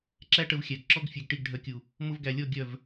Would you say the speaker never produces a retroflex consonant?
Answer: no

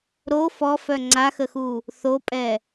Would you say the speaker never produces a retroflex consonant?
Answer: yes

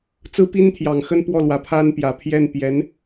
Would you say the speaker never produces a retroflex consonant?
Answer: yes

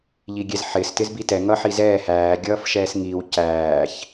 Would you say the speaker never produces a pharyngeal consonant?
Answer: no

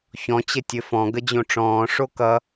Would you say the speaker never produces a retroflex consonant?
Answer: no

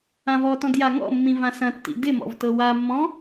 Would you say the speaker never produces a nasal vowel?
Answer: no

